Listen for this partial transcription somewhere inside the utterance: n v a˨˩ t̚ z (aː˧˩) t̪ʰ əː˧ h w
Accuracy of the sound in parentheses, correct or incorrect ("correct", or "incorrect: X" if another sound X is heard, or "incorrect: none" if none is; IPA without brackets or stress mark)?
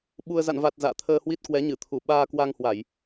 incorrect: a̰ː˧˨